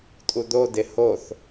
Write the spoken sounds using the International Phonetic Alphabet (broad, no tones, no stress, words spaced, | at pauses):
tʼud̪odɪ hoθ